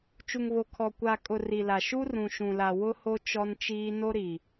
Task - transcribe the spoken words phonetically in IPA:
t͡ʃ u˨ ŋ β o˨ kʰ ɔ˨ kʷ a˨ kʼ ʊ˨ r i˨ l a˨ ʃ u˦ r ũ˨ ʃ ũ˨ l a˨ w ʊ˦ h o˦ t͡ʃ ɔ˦ n t͡ʃ iː˦ n o˦ ɾ i˨

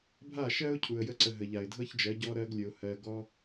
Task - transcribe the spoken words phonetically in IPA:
bʱ a˦˨ ʃ ɜ˦ ʊ̯ cʰ u˨ ə̯ j ə˧ ǀ ə˨ ɦ ə˨ ʎ a˨ ɪ̯ dʱ ɤ˦ ç d͡ʒ ɜ˨˦ ɟ ɔ˧ ɾ ɜ˧ ɡ lʲ ə˨ ʊ̯ h ɜ˨ ɡ ɔ˦

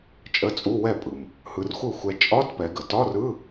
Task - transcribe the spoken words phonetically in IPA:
t͡ʃʼ ə˧˥˧ t͡sʼ u˧˥˧ w ɛ˥˩ pʼ ɯ˩ m | h ɯ˧ r xʷ ɯ˥˩ xʷ ɛ˧ t͡ʃʼ ɒ˧˥˧ t p ɛ˩˧ ɡ ə˩ t ɒ˧˥˧ r ɯ˧˥˧

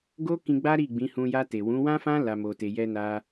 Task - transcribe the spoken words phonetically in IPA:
ɡ o˦ k ĩ˧ ɡ͡b a˦ ɾ i˦˨ ɡ͡b ĩ˨˦ h ũ˧ j a˧ t e˨ w ũ˨˦ w ã˦ f ã˦ l a˧ m o˧ t e˧ j ɛ˧ n a˧

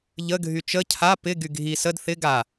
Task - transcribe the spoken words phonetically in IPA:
ʎ ə ɡʱ y t͡ʃ ə cʰ a p ɪ ɡ y ɡʱ i s ə d θ ɪ ɡ a

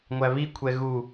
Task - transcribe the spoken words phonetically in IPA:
ŋʷ æ β i kʷʰ ɛ ɣ u

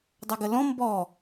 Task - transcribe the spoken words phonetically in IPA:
dˤ a ɡ ə l ɔ̃ m b ɔ

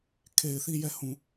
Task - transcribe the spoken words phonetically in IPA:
kʰ e˨ ɪ̯ θ i˦˨ j ɛ˦˨ h ũ˨

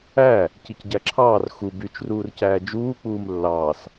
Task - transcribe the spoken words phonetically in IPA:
æ | c i c ɟ æ ǁʰ ɑː r x u b y t͡ʃ r uː r c æː d͡ʒ uː k͡p uː m lː ɑː s

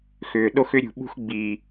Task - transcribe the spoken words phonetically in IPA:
x ʏː˨ ɗ o˦ x ʏ˦ ɾʲ ṳ˨ ɓ ṳ˦ x ɡ͡b iː˨

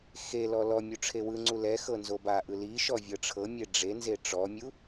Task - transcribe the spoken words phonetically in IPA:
x e l ɔ l ɔ mʲ u ʈ͡ʂʰ e w ɯ ŋ͡ǀ u l ɛ x ɤ n z o b a ʔ ɯ l i ʃ ɔ vʲ ɤ ʈ͡ʂʰ ɤ mʲ e ɖ͡ʐ e n z e ʈ͡ʂ ɔ mʲ u

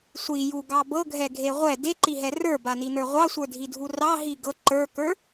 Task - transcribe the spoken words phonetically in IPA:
sʷ i j u ɡ ɑ b ɤ ɡʱ ɛ ɡʱ e ʁʷ ɛ d e ǃ i ɦ ɛ r ə˞ b a n i n ə˞ ʁʷ ɑ sʷ ə˞ dʱ i dʱ u r ɑ ɦ i ɡ ɤ ǃ ə˞ k ə˞

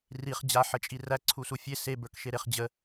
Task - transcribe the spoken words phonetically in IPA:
r i χ d͡ʑ a ħ ə t͡ʃʼ i r æ ǀʰ u s u fʲ e s e b ə˞ k ʃ e ɾ e χ d͡ʑ ə

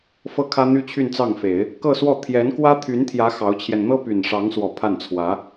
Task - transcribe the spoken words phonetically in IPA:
f ɤ˥˩ kʰ ä˥ n̪ y˥ t͡ɕʰ y˥˧ n t͡s ɑ˥˩ ŋ f e˨˩˦ ɪ̯ | k ɤ˥˧ s w ɔ˥˩ t̪ʰ j ɛ˧˥ n k w ä˥ t̪ʰ y˧˥ n t̪ʰ j ä˧˥ x ɑ˧˥ ʊ̯ t͡ɕʰ j ɛ˧ n n̪ ɤ˥ p y˨˩ n ʂ ɑ˧˥ ŋ s w ɔ˨˩ pʰ a˥˩ n t͡sʰ w ä˧˥

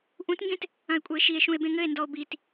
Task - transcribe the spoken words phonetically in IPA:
ʔ ũ t ŋ ɡ ẽ t | ɐ̃ e̯ kʷʼ ɛ e̯ ʃ i e̯ ʃ ũ e̯ b ẽ ŋ ɘ e̯ n d ɔ o̯ b i t

